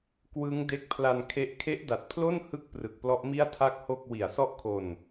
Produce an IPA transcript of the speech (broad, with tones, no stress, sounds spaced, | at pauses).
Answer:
k w ɯ˦˥ ŋ d e˦˥ k̚ pʰ l a˧ n kʰ e˦˥ ʔ kʰ e˦˥ ʔ d a˨˩ t̚ pʰ l o˥˩ n h ɯ˥˩ k̚ p r ɯ˨˩ k̚ p l ɔ˦˥ ʔ m i˥˩ a̯ tʰ a˥˩ k̚ h o˥˩ k̚ w i˨˩ a̯ s ɔ˥˩ ʔ kʰ o˧ n